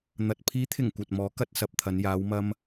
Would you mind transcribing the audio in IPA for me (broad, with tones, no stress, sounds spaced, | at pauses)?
n̪ ɐ˨ t̚ pʰ iː˨˥ t̪ʰ ɪ˨˩ ŋ kʷ ɐ˨ t̚ m ɔː˨˥ k ɐ˧ t̚ s ɐ˨ p̚ t̪ʰ ɐ˨˧ n j aː˨˧ w m ɐ˧ m